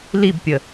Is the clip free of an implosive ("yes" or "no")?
yes